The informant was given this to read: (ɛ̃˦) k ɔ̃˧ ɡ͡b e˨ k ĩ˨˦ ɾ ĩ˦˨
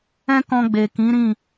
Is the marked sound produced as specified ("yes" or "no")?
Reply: yes